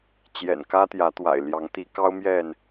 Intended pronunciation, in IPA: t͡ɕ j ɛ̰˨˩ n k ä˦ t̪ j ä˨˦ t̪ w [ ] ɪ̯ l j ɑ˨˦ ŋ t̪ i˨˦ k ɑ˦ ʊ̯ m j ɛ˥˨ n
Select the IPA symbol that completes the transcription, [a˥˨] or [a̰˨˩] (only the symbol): a̰˨˩